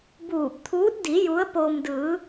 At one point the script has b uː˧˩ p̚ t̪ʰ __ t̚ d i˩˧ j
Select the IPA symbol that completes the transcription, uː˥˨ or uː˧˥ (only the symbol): uː˧˥